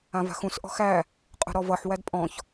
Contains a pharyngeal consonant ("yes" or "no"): yes